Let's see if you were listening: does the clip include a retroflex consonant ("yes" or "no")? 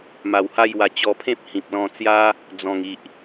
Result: no